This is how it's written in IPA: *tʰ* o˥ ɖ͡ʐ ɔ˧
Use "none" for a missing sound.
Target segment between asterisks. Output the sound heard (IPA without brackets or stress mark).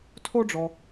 tʰ